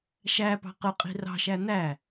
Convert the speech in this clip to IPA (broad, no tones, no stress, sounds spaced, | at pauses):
ʃ æ p ɑ̤ q ɯ qʼ i̤ r ɑ̤ ʃ æ n æ